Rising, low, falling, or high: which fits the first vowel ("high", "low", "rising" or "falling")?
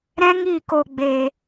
high